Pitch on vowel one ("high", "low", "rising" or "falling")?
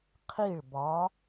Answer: falling